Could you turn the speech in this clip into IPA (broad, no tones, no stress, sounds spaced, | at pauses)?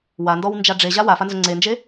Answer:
w a n d ɔ w n d͡ʒ a ɖ͡ʐ e ʑ a w a f a n z ʊ ŋ͡ǀ e n d͡ʒ e